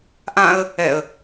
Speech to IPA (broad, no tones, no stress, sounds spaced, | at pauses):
ʔ ã ə̯ | ɛ ə̯